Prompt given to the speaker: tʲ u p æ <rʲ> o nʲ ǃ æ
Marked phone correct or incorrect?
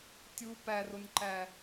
incorrect